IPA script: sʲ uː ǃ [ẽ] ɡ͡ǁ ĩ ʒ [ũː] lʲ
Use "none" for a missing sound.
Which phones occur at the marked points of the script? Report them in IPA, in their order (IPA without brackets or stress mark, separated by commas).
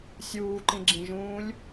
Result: ĩ, ũː